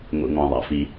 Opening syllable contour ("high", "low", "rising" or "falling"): low